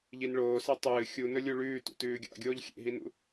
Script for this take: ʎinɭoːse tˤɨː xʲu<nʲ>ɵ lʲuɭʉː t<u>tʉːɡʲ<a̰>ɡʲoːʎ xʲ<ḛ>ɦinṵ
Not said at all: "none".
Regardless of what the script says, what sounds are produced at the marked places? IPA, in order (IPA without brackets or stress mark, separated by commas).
n, ṵ, a̰, ḛ